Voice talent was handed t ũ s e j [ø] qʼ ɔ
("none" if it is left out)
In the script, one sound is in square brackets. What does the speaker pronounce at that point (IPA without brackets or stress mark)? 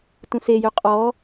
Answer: ø